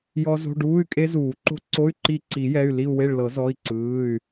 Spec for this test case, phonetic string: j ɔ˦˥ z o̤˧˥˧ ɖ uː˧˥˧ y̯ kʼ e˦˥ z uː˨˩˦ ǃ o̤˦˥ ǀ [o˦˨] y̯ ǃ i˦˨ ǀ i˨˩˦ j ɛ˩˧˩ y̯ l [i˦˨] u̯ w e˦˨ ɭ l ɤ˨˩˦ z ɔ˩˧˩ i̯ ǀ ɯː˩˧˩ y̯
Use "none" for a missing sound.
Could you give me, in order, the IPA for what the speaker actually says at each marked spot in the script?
o˧˥˧, i˦˨

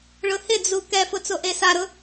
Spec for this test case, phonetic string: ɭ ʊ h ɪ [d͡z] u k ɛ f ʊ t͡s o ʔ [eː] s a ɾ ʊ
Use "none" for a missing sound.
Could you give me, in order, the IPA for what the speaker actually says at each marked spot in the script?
d͡z, e

